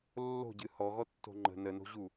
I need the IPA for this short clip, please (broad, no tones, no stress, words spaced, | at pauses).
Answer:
lːo̤ɟɨ hɔɣɔtːo̤ ŋ͡ǃə̤ nəno̤ʑu